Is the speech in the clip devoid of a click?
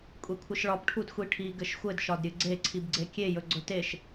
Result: no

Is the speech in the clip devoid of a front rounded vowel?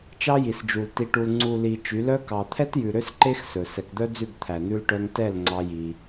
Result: no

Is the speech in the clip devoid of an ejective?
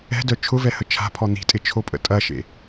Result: no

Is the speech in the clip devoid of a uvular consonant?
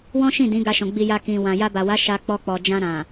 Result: yes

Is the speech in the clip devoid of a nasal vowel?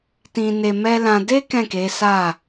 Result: no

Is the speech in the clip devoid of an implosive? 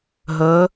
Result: yes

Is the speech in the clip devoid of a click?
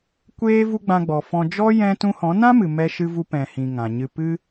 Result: yes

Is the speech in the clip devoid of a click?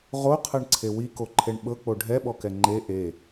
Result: no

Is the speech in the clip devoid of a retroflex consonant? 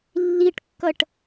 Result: no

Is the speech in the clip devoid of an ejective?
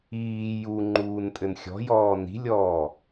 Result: no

